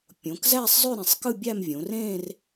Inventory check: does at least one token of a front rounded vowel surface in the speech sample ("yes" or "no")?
yes